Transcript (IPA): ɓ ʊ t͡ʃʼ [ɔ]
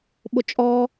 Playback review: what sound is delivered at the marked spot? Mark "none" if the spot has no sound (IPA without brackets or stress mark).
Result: ɔ